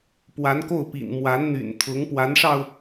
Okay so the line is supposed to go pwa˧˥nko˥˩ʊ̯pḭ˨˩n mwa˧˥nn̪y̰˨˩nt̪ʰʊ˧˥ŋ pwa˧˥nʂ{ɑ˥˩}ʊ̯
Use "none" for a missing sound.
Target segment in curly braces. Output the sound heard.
ɑ˧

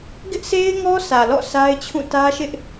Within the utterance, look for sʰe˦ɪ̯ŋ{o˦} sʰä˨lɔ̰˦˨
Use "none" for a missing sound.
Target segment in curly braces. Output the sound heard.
ɔ˦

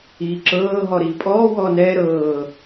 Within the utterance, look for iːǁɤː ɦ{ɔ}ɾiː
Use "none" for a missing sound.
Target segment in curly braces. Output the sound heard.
ɔ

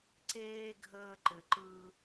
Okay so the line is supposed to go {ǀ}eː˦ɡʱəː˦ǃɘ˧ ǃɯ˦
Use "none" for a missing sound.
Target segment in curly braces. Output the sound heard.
ǀ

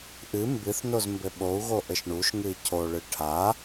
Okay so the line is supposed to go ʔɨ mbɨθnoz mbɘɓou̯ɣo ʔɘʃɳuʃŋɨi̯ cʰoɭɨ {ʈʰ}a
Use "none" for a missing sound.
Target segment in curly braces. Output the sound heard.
ʈʰ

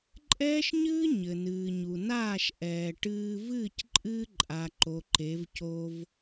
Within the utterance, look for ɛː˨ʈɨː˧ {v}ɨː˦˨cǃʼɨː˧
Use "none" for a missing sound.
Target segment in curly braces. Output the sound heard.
v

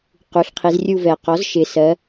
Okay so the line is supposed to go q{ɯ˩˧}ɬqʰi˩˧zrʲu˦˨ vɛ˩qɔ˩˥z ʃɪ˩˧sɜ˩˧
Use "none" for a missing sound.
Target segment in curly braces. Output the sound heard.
u˩˧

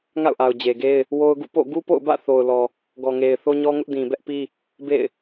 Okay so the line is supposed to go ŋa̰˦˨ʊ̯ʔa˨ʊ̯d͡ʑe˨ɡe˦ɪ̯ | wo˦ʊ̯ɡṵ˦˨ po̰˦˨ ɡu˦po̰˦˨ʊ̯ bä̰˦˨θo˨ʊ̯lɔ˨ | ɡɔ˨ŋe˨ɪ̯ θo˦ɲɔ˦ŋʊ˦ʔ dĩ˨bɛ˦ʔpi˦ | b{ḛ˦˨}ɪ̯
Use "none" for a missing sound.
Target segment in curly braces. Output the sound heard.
ḛ˦˨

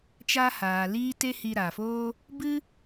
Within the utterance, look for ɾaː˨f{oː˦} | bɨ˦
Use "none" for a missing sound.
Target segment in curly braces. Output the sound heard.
oː˦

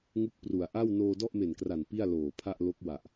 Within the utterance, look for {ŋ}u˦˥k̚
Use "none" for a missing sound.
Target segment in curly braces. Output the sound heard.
ŋ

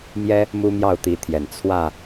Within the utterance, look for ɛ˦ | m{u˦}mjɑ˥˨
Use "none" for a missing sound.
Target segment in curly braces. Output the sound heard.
u˦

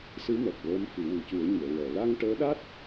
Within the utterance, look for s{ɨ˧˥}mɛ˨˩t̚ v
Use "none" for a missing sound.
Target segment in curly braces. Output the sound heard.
ɨ˧˥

